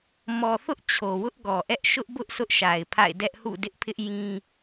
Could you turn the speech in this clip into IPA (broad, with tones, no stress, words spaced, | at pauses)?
mɔ˨θʊ˦ʔ t͡ɕʰo˨wʊ˦ʔɡɔ˨ʔɛ˦ʔ ʃʊ˦ʔbʊ˦ʔ sʊ˦ʔʃa˨ɪ̯pʰa̰˦˨ɪ̯dɛ˦ʔ hṵ˦˨dɪ˦ʔpʰɪ˦ʔ jĩ˦